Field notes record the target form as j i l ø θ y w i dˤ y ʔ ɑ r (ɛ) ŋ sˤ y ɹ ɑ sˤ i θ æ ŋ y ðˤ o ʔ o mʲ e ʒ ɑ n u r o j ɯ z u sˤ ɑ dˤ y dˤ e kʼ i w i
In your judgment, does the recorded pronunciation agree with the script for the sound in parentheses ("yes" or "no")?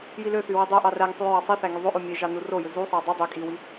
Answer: no